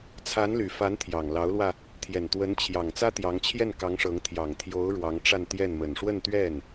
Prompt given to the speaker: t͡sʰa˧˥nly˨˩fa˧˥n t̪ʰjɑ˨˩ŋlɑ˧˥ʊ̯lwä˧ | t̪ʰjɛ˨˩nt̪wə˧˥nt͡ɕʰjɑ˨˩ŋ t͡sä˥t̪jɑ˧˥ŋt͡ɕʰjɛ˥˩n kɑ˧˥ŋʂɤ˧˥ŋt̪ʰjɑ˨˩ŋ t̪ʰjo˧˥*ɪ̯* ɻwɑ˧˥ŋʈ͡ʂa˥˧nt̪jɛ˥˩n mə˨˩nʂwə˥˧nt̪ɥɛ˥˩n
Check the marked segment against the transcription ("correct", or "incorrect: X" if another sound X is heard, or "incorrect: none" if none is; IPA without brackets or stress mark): incorrect: ʊ̯